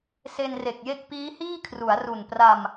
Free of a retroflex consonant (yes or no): yes